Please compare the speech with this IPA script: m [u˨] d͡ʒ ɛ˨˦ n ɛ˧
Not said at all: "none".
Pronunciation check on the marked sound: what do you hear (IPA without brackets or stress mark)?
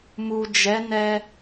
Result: u˨